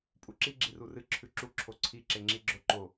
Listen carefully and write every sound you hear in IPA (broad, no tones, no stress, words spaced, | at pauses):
pʼuǁi ɡ͡ǁirurɨ ǁʰʉǁu ǁʰoǀʰi ǁeŋ͡ǁiɡ͡ǁo ǃo